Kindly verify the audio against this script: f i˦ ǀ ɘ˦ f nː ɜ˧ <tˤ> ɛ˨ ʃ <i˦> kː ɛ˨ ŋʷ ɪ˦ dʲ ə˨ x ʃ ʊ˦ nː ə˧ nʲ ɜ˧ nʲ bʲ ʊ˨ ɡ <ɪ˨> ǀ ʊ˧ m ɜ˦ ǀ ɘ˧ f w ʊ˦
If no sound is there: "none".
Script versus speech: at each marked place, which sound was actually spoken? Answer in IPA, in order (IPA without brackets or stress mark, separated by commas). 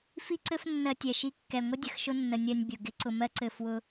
tʲ, i˧, ɪ˦